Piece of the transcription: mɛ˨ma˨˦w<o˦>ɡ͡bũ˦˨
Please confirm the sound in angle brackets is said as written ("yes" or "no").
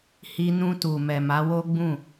yes